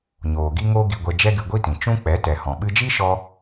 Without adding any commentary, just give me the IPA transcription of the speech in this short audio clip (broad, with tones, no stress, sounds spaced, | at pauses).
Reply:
ɲ oː˨ ɡ i˦ ŋ o˦ ɡ i˧ ɡʷ ɛ˧ d͡ʒ ɛ˦ ɡ ɨ˧ ɡʷ i˦ t ĩ˨ t͡ʃ ũ˦ k͡p ɛ˨˦ t ɛ˨ h ɔ̃˨ ɓ ɨ˧ d͡ʒ i˦ ʃ ɔ˧